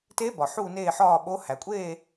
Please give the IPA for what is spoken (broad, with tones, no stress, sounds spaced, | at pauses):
t e˧˥ b ɒ˩ ħ uː˦˨ n eː˦˨ ħ ɒː˦˨ ɓ o˧˥ h æ˩ kʷʼ eː˦˨